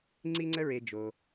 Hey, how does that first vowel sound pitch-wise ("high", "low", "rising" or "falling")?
high